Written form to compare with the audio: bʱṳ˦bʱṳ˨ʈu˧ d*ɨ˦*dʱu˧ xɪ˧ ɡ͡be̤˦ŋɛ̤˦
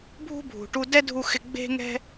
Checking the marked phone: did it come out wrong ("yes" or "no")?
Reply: yes